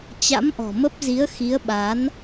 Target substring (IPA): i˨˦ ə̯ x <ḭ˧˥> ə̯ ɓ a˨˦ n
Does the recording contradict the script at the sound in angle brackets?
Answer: yes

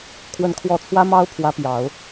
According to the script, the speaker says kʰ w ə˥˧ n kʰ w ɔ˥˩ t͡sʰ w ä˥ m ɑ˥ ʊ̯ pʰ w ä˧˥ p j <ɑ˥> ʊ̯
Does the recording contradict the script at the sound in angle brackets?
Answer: yes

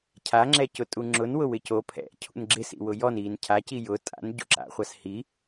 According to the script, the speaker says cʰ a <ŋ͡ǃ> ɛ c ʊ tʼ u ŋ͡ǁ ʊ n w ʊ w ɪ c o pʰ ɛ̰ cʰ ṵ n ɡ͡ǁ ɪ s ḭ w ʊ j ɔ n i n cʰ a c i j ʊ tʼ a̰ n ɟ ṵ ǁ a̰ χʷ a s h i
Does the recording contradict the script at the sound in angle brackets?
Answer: yes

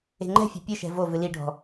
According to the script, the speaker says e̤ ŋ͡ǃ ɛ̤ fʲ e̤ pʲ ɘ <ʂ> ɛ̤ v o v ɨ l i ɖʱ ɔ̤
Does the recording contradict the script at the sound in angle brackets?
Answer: yes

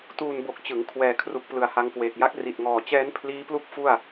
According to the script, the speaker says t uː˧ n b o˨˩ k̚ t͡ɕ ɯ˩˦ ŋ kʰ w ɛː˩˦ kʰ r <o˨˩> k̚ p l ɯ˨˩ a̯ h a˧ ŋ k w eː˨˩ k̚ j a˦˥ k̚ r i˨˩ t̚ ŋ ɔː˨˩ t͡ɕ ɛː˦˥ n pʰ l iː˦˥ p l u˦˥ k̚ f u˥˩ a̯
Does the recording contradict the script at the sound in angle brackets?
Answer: yes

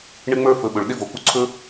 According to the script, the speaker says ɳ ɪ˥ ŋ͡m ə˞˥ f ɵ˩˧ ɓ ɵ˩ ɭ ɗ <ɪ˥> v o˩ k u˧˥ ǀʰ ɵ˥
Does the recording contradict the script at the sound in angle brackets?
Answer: no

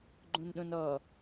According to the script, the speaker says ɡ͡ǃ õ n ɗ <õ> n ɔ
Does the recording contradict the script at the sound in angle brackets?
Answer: no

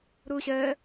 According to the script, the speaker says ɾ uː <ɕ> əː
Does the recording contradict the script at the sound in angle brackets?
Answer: no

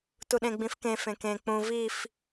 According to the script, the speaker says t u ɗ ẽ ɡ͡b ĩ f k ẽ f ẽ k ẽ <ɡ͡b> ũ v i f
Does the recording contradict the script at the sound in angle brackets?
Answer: yes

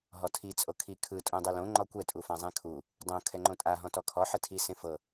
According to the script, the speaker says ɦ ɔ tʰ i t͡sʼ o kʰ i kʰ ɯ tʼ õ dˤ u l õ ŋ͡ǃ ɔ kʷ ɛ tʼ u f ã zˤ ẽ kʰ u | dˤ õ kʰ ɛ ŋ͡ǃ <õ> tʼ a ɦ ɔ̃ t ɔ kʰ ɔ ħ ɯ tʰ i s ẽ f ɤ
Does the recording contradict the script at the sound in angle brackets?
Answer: no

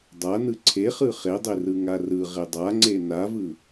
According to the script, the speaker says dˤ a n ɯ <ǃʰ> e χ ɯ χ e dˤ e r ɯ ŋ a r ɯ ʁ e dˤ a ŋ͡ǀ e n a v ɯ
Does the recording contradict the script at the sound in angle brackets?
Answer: yes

